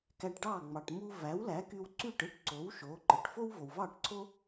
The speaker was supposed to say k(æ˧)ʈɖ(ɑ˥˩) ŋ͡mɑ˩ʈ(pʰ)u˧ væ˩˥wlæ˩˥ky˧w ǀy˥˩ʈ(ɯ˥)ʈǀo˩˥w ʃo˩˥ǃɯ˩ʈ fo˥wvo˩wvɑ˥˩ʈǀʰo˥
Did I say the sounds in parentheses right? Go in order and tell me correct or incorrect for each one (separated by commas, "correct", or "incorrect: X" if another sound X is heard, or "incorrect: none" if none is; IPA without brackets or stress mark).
correct, correct, incorrect: m, correct